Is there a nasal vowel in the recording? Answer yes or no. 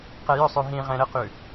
yes